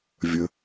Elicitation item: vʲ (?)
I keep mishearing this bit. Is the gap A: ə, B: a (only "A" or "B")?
A